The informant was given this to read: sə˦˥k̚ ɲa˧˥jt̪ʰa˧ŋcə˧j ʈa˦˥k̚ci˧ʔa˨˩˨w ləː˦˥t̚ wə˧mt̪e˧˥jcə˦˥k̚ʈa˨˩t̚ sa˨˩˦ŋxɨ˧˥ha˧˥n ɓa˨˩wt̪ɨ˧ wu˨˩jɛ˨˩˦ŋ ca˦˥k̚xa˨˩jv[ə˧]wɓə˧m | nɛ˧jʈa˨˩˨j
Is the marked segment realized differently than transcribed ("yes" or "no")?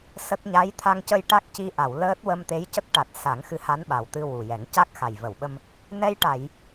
yes